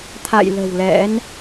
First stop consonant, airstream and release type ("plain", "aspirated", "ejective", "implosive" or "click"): aspirated